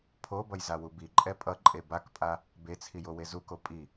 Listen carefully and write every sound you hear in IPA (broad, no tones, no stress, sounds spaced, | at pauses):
pʰ o b ʌ j z a w u b i ǃʼ ɛ pʼ ʌ ǃʼ e b a k pʼ a | b e t͡sʰ i j o w e z u k o pʼ i